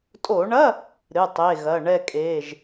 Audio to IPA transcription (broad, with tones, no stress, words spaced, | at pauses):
tʼo˧˩˧ɳɐ˧˥˧ | ɾɨ˩˧˩tˤe˩˧˩ ɣɐ˩˧˩ ɳɛ˥˨kʼeː˩˧˩ʒ